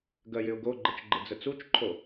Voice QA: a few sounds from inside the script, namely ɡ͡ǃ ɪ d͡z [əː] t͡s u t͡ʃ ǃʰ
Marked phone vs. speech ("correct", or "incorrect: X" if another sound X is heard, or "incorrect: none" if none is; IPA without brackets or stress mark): incorrect: ə